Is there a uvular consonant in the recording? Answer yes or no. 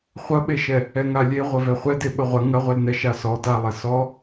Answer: yes